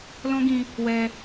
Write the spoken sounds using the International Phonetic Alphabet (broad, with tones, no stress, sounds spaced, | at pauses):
l ɔ̃˦ ɡ ĩ˧ | w ɛ˧